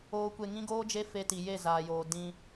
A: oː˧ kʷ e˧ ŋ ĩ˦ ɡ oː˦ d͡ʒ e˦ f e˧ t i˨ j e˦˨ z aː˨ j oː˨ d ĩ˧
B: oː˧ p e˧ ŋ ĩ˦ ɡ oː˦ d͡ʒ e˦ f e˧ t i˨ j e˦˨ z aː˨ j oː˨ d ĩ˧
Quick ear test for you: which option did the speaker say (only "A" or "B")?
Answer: A